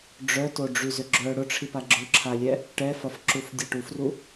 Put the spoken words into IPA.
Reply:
ɖ͡ʐ œ t o ɖ͡ʐ y z ʏ ɡ͡ǁ œ ɽ ʊ ʈ͡ʂʰ i p a ɡ͡ǁ ʊ ǁʰ a lʲ ɛ | ʈ ɛ f ɐ f ǁ u f dʲ ɛ ʈ u f r u

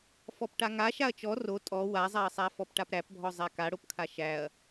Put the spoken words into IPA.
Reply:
f ɔ p ʈ a ŋ a ʃ a ɐ̯ t͡ʃ ɔ r o tʼ ɔ w a zˤ a ɐ̯ sˤ æ f ɔ p ʈ a p ɾ æ p bʱ ɔ zˤ æ k a ɽ o p kʰ a ʃ æ ɐ̯

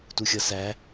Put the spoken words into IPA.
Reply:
t u xʲ ʌ s æ

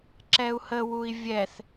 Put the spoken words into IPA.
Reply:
ǁ ɛ u̯ h ə w u i̯ vʲ ɛ θ

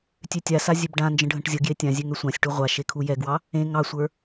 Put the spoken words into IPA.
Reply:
tʲ ø tʲ a s a zʲ ø b ɖ ã n d͡ʒ ə̃ ɖʱ ə̃ ʈ zʲ ə ɡ j e tʲ ã zʲ ø ŋ ø sʷ ã sʲ ʈ u ʁʷ a ʃ e kʰ u j ɛ ɡ w ɑ | ẽ ŋ ɑ sʷ ə˞

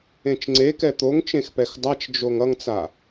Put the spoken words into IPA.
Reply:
ẽ t͡ʃ ŋ͡ǀ e k ɛ t̪ o ŋ t͡ʃ ẽ x p ɛ x dˤ a t͡ʃ d͡ʒ o ŋ ʌ ŋ t͡s a

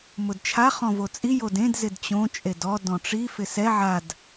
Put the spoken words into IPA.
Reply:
m ʊ d t͡ʃʰ a χ ɔ̃ v o t͡sʼ i j o d ẽ d z ɪ d t͡ɕ õ t͡ʃʼ e d ɔ d ɔ̃ ʈ͡ʂ i f ɪ s ɛ ʕ a d

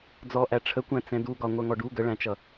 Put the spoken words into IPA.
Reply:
d͡z ɔ ʔ æ ʈ͡ʂʰ ə kʷ æ̃ t͡s ɛ̃ d u ɡ ɒ ŋʷ ɜ ŋ ɔ ɖ u ɡ ə ɭ æ̃ t͡ʃ ʌ

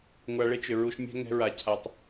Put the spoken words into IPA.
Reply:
ŋʷ a˧ ɭ e˦ t͡ʃ ʏ˨ ɹ u˧ ʃ mʲ ɛ̤˦ ŋ ɛ̤˧ ɹ a˨ cʰ a˨ tˤ

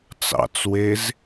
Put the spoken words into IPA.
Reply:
t͡s ɑ̰ t͡s w e z

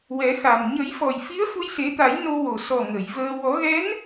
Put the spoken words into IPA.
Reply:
w ɛ˨˩˦ x a˨˩ m ɲ ə˨˩˦ j f ɔ˨˩ j f i˧˥ ə̯ f u˧ j s e˨˩˦ t̪ a˨˩˦ j n o˧ w o˨˩ s ɔ˨˩ ŋ ə˨˩˨ j v əː˧ w ɔ˨˩˦ ɣ ɛ˧˥ n

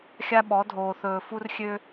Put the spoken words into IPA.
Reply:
xʲ a˦ ɓ ɔ˨˦ dʱ oː˨ θ ɵː˨ f u˦ r xʲ ø˦

